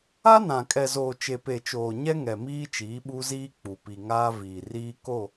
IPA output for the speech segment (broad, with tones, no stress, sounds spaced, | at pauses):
a˦ n ã˨ kʼ ɛ˨ z oː˨ t͡ʃ e˨ p e˨ t͡ʃ oː˨ ɲ ɛ˦ ŋ ɛ˨ m iː˦ t͡ʃ iː˨˦ ɓ u˦ z iː˦ k͡p u˨ p i˨ ŋ aː˦ v iː˨ r iː˦ k o˦˨